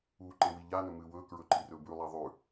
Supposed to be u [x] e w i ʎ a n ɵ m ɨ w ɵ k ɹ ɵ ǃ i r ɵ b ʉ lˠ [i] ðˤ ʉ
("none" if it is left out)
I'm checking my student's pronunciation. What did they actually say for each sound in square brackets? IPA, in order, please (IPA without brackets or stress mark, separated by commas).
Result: ǃ, i